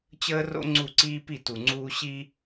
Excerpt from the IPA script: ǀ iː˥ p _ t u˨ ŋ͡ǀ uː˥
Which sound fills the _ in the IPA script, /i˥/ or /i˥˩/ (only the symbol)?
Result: i˥˩